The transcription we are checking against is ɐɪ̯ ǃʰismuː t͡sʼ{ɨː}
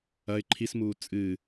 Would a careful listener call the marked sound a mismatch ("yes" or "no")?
no